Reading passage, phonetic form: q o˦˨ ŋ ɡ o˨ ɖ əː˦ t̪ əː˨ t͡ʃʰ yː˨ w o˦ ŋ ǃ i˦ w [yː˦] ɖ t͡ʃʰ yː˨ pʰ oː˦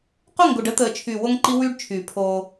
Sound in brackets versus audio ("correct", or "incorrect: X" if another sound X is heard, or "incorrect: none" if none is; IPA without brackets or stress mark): correct